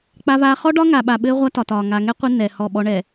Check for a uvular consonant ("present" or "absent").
present